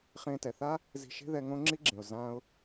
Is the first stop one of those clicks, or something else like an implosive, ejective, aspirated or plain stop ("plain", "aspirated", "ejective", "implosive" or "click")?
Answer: plain